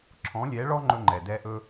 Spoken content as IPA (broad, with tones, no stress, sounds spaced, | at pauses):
ǁʰ ɔ̃˨˦ lʲ ɛ˨˦ ɭ ɔ˦ ŋ͡ǃ ɵ˦ ŋ͡ǃ ɛ˨ d ɛ˦ ʔ ɵ˦